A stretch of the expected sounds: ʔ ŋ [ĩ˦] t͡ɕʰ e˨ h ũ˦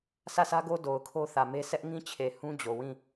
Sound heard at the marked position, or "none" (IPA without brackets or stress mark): ĩ˦